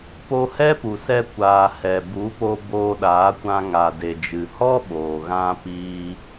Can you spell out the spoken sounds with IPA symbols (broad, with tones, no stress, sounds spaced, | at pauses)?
p o˧ h ɛ˦ p u˨ s ɛ˧ kʷ aː˨ h ɛ˨ b u˨˦ p o˧ b oː˧ ɗ aː˨˦ kʷ ã˧ ŋ a˨ d e˨ d͡ʒ ɨ˨ h ɔ˦ ɓ oː˨ ɣ ã˧ p iː˧